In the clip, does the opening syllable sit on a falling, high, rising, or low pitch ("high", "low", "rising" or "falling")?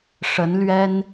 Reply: rising